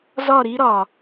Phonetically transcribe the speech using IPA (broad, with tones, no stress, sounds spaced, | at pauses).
z ɒ˦˨ ɾ i˦ ɾ ɒ˨